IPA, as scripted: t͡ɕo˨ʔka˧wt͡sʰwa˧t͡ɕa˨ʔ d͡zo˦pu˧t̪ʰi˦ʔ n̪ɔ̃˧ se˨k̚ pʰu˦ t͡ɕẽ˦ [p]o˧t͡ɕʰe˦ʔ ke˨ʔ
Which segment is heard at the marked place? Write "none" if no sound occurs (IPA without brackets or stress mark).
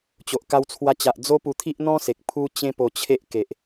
p